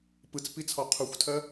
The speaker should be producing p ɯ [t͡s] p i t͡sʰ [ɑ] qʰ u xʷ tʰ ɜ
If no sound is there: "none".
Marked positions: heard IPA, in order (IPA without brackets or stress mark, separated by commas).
t͡s, ɔ